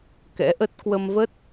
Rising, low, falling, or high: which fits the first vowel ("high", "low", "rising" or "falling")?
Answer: rising